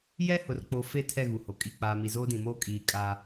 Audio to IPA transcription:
j ɛ˦ h ʊ˨ r k͡p o˨ f e˦˨ tʰ ɛ˦˨ ɣ u˨ h o˨ kʼ i˦˨ k͡p aː˨ m i˨ z oː˦ d ĩ˨ m oː˦ kʼ iː˨ kʼ a˦

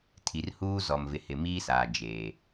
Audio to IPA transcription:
tʰ i˨ r h uː˦ z ɔ˨ m v ɪ˨ h ɪ˨ m iː˦ s aː˨ d͡ʒ eː˨

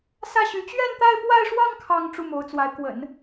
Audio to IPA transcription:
s ä˥˩ ɕ y˧˥ t͡ɕ ɥ ɛ˥˧ n t̪ a˥˧ ɪ̯ p w a˥˧ ɪ̯ ʂ w ɑ˥˧ ŋ kʰ ɑ˥˧ ŋ ʈ͡ʂ u˥˩ m o˧˥ ʊ̯ t͡s w a˧˥ ɪ̯ k w ə̰˨˩˦ n

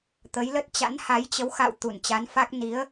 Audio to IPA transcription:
t̪ ə˨˦ j l ə˦˥ t̚ t͡ɕ a̰˧˥ n h a˨˦ j t͡ɕ ə˨˦ w x a̰˧˨ w t̪ u˧˩ n t͡ɕ a˨˦ n f a˦˥ k̚ n i˨˦ ə̯

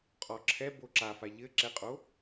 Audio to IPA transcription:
qʼ ɔ ǁʰ ɛ b o ǁ a f a ʎ ɘ ǁ ɛ qʼ o

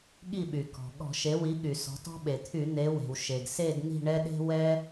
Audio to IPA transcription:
ɠ i˦˨ ɓ y˩ k ɔ̤˩ ɠ ɔ̤˧˩˧ ʃ e˩˥ w i˩˥ ɠ y˩ s ɔ̤˩˧ t ɔ̤˦ ɓ e˩ t̪ʰ y˧˩˧ n̪ e˩˧ w e̤˩ w ʃ e˩ ɡ s e˦˨ d n̪ i̤˦˨ ɳ ɛ˦ ɗ e̤˦ w ɛ˦

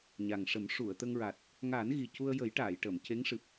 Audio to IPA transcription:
ɲ a˨˩ ŋ ʂ ə˨˩˦ m ʂ u˨˩˨ ə̯ t̪ ə˧ ŋ ɹ a˨˩ t̚ | ŋ aː˨˩˦ n ɣ i˨˩ c u˧ ə̯ j ə˨˩˦ j ʈ aː˨˩˨ j ʈ əː˨˩˨ m c e˧˥ ŋ ʂ ɨ˨˩ p̚

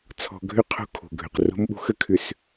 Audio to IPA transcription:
t͡sʰ ɔ̤˨ ɡʱ ʏ˦ qʰ o̤˦ kʰ o̤˨ ɡʱ ʏ˨ q r o̤˦ m ɓ o̤˦ x ə˦˨ kʰ ʏ˨ s

